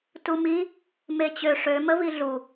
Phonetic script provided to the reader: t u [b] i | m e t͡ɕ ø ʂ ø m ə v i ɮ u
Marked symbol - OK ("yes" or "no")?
no